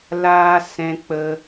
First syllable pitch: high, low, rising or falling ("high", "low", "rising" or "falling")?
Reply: high